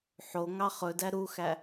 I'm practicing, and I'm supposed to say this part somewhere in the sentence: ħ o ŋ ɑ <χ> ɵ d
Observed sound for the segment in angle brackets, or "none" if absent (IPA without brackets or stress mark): χ